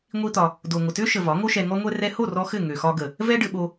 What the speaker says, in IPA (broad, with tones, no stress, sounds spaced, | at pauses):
ŋʷ i˦ t̪ ɒ˧ | d o˨ ŋʷ ə˨ t ø˦ ʃ ə˨ v ɒ˨˦ ŋ o˦ ʃ ɛ˧ ŋ ɔ˦ ŋʷ ɛ˦ r ɛ˧ h o˦˨ r ɔ˧ x ɘ˦˨ ŋ ø˨ x ɒ˧ ɡ ə˨ | v ɛ˦ ɖ ɘ˦ ɓ o˦